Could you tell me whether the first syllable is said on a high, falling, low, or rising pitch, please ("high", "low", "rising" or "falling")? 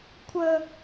high